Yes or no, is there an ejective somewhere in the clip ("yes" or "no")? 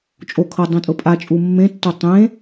yes